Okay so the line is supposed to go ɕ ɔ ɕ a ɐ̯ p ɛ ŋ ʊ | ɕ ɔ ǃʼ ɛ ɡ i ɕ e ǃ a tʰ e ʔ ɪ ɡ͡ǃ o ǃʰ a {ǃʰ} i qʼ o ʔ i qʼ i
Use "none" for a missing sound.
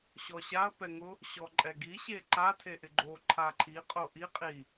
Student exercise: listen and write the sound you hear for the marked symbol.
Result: ǃʰ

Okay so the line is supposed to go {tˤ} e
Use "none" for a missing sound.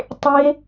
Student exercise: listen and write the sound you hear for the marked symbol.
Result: tˤ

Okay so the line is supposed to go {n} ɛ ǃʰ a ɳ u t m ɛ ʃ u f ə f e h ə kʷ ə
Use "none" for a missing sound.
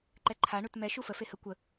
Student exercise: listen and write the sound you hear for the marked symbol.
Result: ǃ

